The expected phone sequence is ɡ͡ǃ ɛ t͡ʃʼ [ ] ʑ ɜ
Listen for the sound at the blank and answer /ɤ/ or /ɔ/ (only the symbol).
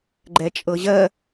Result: ɤ